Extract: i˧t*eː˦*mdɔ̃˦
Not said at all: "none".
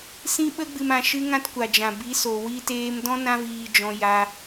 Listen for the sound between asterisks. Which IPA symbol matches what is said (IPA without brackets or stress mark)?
eː˧